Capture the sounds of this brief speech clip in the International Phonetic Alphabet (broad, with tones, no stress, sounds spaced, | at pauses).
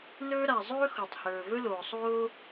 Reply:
n ɵː˥ ɾ a˩ zˤ ɵː˥ x o˩ tˤ h ɵː˩ v ɵ˥ l oː˩ sˤ oː˥